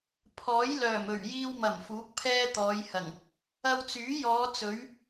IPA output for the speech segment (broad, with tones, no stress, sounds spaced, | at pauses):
pʰ ɔː˨˥ j l œː˨˩ m ɵ˨˩ ɥ j iː˧ w m ɐ˨˩ m f uː˨˥ k̚ pʰ ɛː˥ t̪ ɔː˨˧ j h ɐ˨˩ ŋ | ɐ˧ w t͡s yː˨˥ j ɔː˨˧ t͡s ɵ˨˥ ɥ